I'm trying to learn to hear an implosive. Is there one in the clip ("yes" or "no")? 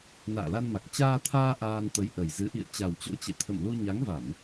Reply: no